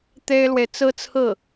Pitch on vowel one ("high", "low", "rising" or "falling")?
high